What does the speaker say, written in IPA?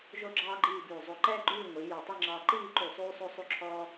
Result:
ʒ o˥ ɡ͡ǁ ɑː˥ ɡ͡ǃ iː˥˧ b ʉː˧˩ zˤ o˧˩ ǃ ɛː˥ ɡ͡ǃ ʉː˥˧ ŋʷ iː˩˧ j ɑ˧˩ tˤ i˥˧ ŋ͡ǁ ɑː˧ ǃ iː˥˧ ǃ y˧˩ sˤ ʉː˥ sˤ o˥ sˤ ʉ˥˧ ǁʰ ɔː˧

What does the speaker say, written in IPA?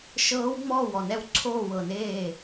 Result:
ʃ ɤː˦˥ w ŋ͡m ɔː˥˨ w ɔ˥˨ n ɛ˦˥ w ǀʰ oː˥˨ w ɤ˥˨ n eː˥˨

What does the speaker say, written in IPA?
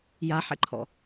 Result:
j a ħ ɛ̰ ǃʰ ɔ̰

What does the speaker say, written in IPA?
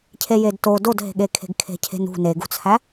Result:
cʰ e j e d t o d o d ɦ e̤ ɠ e kʰ e̤ ɡ kʰ e̤ cʰ e̤ n ṳ n e ɡ ṳ t͡sʰ æ

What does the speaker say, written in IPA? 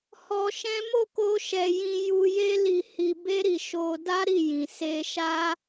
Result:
h ɔ˧ ʃ ɛ̃˦ m o˦˨ k o˧ ʃ ɛ˨ j ĩ˧ j u˧ j e˦ l i˧ h i˧ b e˦ ɾ i˧ ʃ o˧ d a˦ ɾ i˦˨ j ĩ˨ s e˧ ʃ a˦

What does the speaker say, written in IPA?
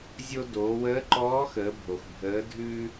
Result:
zʲ o˧ d oː˩˧ w əː˧˥ ǃ ɔː˧˥ x əː˩˧ bʱ o˩ x bʱ əː˩˧ dʱ ʉː˧

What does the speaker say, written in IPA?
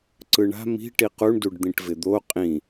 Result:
ǀ ɯ ɳ a̤ m i̤ ʈ i q u ɳ d u ɖ d̪ ĩ ʈ v ɪ d̪ o qʼ ĩ

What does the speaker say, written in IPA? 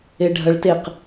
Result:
e ɖʱ ɐ ɭ t e q

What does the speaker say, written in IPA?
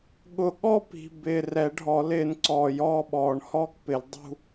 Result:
ɠ ʊ˧ ɠ ɔ˥˨ p i̤˨˩ b ɪː˨˩ r ɛ˨˩˦ ɖʱ ɔ˨˩˦ l ɪː˨˥ n ǀ ɔː˨˩ j ɔː˥˨ ɓ ɔː˨˩˦ ɳ h ɔː˥˨ k p ɪ˨˩˦ l dˤ ṳ˥˨

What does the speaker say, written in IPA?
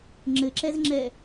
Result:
ŋ͡ǁ ɘ ǁ ɛ z ŋ͡ǁ ɛ

